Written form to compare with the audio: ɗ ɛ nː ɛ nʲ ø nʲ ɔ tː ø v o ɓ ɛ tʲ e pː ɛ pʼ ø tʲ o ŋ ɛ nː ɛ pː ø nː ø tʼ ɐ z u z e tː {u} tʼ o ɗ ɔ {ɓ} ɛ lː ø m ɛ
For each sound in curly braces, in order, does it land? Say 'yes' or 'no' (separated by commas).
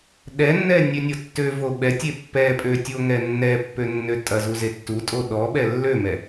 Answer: yes, yes